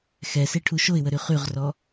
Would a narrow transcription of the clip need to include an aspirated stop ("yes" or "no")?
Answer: yes